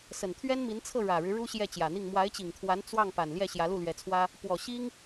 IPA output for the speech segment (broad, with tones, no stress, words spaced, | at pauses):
sə˨˩nt̪ʰɥɛ˥n mi˧˥nt͡sʰɤ˥˩ɻä˨˩ɻɻ̩˦ ɻu˥ɕjɛ˥˩t͡ɕjä˨˩n̪i˥˩ŋ mwa˧˥ɪ̯t͡ɕi˨˩ŋt̪ʰwa˧˥n t͡swɑ˥˩ŋ pa˨˩nljɛ˥˩ ɕjä˧˥lu˥˩lɥɛ˧˥t͡sʰwä˥ | pwɔ˨˩ ɕi˥ŋ